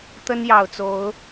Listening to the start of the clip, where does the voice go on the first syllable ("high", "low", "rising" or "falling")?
high